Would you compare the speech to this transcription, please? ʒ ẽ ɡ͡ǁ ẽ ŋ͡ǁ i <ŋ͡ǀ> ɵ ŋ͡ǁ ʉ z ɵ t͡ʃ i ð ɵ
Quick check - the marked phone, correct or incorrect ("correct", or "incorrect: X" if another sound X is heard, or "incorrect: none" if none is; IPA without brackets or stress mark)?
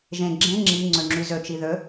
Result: correct